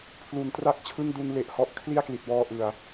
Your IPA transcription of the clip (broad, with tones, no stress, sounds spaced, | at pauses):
pʰ l u˨˩ n t r a˥˩ k̚ t͡ɕʰ ɯ˥˩ ŋ d u˧ n l e˨˩ ʔ h ɔ˦˥ ʔ kʰ l i˥˩ a̯ k l i˨˩ t̚ w ɔː˧ ʔ ɯ˨˩ a̯